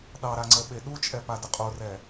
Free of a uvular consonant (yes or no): no